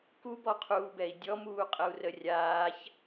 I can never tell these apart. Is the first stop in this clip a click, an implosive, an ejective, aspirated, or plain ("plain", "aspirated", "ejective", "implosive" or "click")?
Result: plain